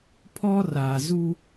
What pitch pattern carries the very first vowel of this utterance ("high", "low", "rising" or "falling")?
high